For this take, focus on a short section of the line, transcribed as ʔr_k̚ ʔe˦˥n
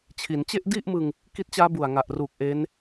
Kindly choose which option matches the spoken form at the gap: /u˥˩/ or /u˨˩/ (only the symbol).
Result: u˨˩